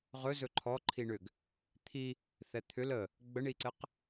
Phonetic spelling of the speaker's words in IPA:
ʁ ɵ z ɵ ǃʰ ɔ ǃʰ i ɳ ʏ ɡ | t̪ʰ i | θ ɛ t̪ʰ ʏ l ə | ɡ͡b ə ɳ i ǀ ɘ q

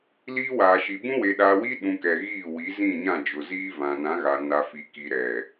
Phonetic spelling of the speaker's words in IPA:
l iː˦ w aː˨ ʃ i˨ b ũ˦ w e˨ ɗ aː˨ w iː˦ ɗ ũ˨ k ɛ˨ ɣ iː˦˨ w i˨˦ z ĩ˦˨ ɲ ã˦˨ d͡ʒ ʊ˨ z iː˦ v ã˨ n ã˨˦ ɣ a˨ n a˨ f i˨ k i˨ ɾ ɛ˨

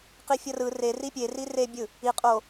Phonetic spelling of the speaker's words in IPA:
q i fʲ ʌ r ɯ r e r i pʲ e r i r e bʲ ɯ | i qʼ o

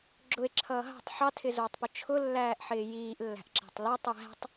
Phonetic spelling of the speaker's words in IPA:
ɡ͡ǁ ʊ e̯ ǁʰ ʌː ɦ ɑ̤ tˤ ħ ɑ tʰ ɪ z ʊː tˤ p ʊ t͡ʃʰ ʊ lː æː ʔ ħ ɪː j iː ʔ lː æ̤ ʔ ǁ æ̤ tˤ l æ tˤ j æ̤ tˤ

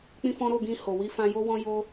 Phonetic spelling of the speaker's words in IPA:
k͡p ĩ˦ f ɔ̃˦ ɾ o˦˨ ɡ ĩ˧ h o˨ w i˧ f ã˧ j o˦ w ɔ̃˦ j o˦

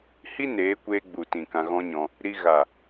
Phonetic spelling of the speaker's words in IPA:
h i˦ n eː˨˦ kʷ eː˧ ɡ͡b u˨ t ĩ˨ k ã˧ ɣ ɔ̃˦ ɲ ɔ̃˧ | ɾ i˧ ɣ a˨

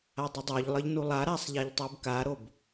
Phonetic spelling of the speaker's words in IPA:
a dˤ ʌ dˤ o ʎ lˠ ʌ ʎ n u lˠ a ɾ a sˤ ʎ a ʎ tˤ u b k a ɾ o b

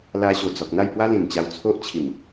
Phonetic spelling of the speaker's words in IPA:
l a˧ ɕ o˨˩ d͡z ɔ˨ k̚ n̪ a˥˧ j p w a˦ l ĩ˨˩ n t͡ɕ a˧ w t͡sʰ o˦ ʔ t͡ɕʰ i˨˩ m

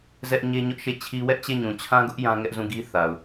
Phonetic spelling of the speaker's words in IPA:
z ɛ˦ ʔ ɲ e˦ ɲ ʊ˦ ʔ ʃ e˦˨ t͡ɕʰ i˦ w ɛ˦ ʔ t͡ɕ e˦˨ ɲ ũ˨ t͡ɕʰ ã˦ ɡ ʊ˦ ʔ j ã˦ ŋ ɛ˦ ʔ z ũ˦˨ ɡ i˦ θ a˨ ʊ̯

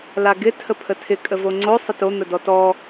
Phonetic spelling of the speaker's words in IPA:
l a ɡ ɪ tʰ ə pʰ ə tʰ ɪ kʼ ə v o ŋ͡ǀ o sˤ ə t o n̪ ə d ɔ t ɔ

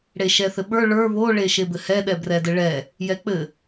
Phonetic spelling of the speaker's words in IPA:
ɽ e ʃ ɛ θ ɘ ɓ ə˞ ɭ ə˞ β o ɭ e ʃ e b ɘ h ɛ ɗ ɛ b r ɛ d ɘ ɭ ɛ | j ɛ k͡p ɘ

